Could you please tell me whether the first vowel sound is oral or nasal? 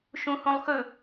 nasal